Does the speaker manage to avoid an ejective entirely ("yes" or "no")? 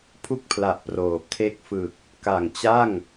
yes